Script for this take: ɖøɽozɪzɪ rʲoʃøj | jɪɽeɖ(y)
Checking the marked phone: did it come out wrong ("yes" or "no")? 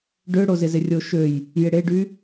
no